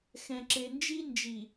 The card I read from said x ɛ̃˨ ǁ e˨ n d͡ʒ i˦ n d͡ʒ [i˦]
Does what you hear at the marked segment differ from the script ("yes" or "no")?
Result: yes